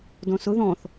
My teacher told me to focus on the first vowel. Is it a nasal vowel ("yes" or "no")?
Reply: yes